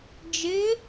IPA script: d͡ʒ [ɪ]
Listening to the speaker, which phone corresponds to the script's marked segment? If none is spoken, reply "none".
ɪ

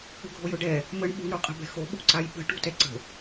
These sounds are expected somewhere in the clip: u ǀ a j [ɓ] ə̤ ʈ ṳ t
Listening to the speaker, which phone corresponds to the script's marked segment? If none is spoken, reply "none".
ɓ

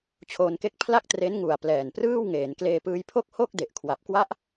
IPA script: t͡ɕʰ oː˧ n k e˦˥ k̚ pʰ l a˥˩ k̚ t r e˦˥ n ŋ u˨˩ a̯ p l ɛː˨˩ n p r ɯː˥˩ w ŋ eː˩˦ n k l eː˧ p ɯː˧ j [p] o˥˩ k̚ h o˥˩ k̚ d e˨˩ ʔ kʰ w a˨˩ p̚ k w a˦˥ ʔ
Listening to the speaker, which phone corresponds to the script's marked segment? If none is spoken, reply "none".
pʰ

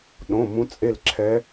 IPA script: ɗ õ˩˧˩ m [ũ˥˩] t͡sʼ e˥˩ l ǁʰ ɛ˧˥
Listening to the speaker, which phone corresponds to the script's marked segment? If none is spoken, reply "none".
ũ˧˥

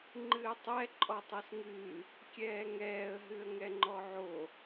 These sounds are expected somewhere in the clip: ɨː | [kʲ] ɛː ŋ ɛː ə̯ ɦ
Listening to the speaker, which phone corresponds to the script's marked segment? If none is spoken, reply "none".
kʲ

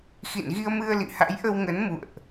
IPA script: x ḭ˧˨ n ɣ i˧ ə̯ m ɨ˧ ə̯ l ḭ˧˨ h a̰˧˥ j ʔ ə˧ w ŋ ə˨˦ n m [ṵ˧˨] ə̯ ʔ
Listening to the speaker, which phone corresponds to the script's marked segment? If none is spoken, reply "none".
ṵ˧˨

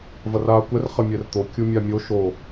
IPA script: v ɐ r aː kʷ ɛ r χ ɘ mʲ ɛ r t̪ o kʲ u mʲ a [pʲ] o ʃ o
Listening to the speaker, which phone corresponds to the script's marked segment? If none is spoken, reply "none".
mʲ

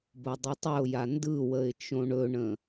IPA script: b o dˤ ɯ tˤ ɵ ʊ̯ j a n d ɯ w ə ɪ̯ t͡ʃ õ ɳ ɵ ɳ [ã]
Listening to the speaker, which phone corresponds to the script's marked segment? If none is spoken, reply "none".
ə̃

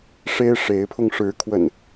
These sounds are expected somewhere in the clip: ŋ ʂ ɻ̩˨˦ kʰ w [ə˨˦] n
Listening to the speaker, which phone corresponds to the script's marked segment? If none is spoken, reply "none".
ə̰˨˩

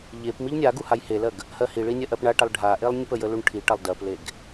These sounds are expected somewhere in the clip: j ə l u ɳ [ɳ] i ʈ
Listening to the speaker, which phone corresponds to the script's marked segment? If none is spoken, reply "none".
ʈʰ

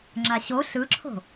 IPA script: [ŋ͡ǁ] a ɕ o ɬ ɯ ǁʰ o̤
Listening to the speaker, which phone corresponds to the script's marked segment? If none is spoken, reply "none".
ŋ͡ǁ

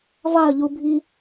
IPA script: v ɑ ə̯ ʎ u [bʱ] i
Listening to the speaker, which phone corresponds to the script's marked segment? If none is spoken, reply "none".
bʱ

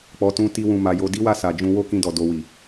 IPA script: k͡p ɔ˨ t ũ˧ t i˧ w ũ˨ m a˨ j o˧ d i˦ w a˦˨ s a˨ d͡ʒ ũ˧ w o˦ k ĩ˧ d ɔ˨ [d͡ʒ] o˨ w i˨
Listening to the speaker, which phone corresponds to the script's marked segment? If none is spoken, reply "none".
d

